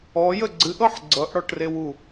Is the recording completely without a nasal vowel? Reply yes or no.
yes